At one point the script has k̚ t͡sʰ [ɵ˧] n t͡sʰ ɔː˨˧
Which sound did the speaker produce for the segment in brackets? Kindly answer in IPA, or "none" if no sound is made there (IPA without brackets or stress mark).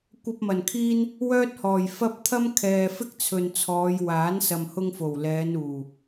ɵ˨